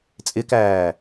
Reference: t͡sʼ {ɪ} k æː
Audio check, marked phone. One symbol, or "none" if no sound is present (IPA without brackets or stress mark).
ɪ